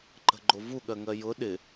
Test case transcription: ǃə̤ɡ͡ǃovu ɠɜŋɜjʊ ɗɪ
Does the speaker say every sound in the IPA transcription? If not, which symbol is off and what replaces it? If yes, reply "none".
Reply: none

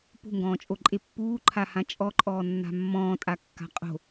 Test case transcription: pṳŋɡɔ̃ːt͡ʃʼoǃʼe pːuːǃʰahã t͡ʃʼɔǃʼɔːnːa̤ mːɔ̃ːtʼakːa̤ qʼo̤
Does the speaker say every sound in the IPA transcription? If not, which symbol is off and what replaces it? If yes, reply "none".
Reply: none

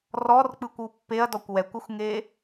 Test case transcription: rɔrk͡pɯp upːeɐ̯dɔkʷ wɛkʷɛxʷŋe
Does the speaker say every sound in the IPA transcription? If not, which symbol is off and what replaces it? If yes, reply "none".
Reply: p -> kʷ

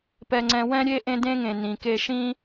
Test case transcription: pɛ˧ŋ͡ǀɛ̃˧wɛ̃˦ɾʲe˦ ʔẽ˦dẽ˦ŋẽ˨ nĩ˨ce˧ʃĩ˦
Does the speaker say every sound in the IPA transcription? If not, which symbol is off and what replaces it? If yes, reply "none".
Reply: c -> k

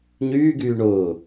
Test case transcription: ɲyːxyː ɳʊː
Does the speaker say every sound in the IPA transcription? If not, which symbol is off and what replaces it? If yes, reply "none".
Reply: x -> ɡ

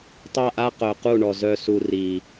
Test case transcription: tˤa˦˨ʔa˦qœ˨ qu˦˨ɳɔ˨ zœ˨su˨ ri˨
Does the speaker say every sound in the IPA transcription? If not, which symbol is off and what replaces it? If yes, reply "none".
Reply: none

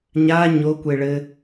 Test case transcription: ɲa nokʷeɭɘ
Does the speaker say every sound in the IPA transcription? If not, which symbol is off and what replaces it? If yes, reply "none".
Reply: n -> ɲ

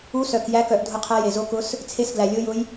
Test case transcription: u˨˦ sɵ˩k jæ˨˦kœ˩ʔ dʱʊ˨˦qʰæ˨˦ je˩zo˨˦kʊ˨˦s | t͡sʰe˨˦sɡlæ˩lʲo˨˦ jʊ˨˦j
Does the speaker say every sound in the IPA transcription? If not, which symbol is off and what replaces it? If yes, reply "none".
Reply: ɵ˩ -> œ˩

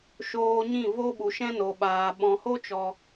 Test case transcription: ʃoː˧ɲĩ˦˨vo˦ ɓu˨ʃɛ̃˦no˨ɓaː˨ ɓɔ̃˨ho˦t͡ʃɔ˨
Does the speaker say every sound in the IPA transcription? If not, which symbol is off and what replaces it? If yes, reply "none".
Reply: none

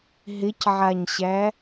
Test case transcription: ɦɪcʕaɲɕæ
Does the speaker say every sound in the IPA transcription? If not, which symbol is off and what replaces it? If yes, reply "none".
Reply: none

